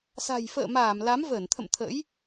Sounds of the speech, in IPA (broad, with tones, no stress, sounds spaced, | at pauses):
s a̤˨˩ j f ə̰ː˧˨ m aː˧˩ m l a˨˦ m v əː˧˩ n t̪ʰ ə̰˧˨ m t̪ʰ ə̰˧˥ j